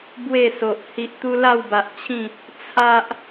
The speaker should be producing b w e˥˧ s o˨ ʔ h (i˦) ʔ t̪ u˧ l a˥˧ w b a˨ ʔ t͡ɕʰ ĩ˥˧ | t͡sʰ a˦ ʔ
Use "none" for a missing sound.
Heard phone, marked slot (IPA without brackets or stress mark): i˨